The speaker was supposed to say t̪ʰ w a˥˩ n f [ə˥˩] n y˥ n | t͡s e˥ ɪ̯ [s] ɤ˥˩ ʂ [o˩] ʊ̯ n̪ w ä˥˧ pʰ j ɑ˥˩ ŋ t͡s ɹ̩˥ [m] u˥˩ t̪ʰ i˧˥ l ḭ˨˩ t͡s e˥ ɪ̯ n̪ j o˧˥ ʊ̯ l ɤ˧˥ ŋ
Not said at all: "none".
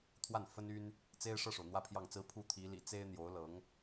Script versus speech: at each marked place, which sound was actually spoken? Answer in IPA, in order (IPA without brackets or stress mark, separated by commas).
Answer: ə˥, ʂ, o˩, pʰ